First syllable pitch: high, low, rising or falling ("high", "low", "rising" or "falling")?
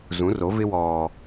rising